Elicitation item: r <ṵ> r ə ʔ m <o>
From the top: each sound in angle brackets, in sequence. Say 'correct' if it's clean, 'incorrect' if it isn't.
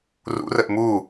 correct, incorrect: u

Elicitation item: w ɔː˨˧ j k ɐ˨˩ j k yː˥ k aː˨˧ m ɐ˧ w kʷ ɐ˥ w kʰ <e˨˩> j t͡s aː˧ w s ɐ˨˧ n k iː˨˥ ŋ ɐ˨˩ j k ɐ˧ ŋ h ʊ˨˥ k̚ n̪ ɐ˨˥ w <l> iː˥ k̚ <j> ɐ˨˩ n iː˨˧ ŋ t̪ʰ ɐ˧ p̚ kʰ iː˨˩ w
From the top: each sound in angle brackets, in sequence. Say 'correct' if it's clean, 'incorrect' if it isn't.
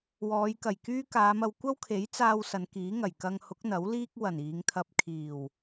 incorrect: e˨˥, correct, incorrect: w

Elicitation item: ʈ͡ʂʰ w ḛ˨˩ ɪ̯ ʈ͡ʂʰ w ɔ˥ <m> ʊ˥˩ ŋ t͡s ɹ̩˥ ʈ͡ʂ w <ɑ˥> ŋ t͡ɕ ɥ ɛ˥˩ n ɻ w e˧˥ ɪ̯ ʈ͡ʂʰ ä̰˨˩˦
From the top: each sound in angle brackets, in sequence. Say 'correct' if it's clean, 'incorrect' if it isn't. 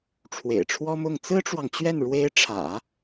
correct, incorrect: ɑ˨

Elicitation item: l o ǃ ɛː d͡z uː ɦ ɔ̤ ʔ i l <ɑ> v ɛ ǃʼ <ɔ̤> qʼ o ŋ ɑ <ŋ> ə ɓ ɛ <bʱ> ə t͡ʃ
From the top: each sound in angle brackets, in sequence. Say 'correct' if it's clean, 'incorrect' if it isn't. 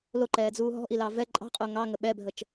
correct, incorrect: ɑ̤, correct, correct

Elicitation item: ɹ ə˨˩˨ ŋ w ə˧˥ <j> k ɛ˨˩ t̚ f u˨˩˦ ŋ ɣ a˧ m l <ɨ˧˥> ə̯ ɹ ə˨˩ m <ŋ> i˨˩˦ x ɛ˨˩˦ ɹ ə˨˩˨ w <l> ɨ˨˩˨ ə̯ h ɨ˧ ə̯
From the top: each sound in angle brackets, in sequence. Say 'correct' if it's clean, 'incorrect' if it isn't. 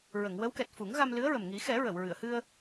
incorrect: w, correct, correct, incorrect: ɹ

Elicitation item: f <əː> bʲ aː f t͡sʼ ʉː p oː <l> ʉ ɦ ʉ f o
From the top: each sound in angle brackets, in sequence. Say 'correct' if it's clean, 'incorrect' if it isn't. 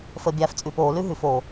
correct, correct

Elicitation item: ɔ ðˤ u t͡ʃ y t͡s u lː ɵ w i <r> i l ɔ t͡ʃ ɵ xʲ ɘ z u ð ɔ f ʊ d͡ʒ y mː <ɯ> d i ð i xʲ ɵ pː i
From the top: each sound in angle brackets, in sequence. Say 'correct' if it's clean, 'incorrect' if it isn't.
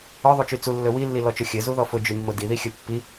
incorrect: lː, incorrect: ʊ

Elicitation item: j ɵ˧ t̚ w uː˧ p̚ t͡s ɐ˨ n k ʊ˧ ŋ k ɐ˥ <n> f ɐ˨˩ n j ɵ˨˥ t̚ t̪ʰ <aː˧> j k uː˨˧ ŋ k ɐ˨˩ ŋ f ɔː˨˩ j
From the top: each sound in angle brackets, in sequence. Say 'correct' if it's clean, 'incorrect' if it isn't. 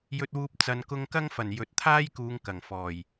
incorrect: ŋ, incorrect: aː˥

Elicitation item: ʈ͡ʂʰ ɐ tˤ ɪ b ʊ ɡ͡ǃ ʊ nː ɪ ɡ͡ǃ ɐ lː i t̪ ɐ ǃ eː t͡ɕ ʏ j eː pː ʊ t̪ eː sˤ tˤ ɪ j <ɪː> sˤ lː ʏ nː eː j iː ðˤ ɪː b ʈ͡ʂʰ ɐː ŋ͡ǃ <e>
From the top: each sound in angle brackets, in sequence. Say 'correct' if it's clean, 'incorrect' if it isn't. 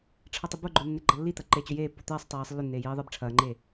correct, incorrect: eː

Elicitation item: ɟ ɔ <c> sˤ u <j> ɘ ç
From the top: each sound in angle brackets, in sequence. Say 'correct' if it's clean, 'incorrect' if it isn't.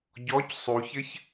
correct, incorrect: ç

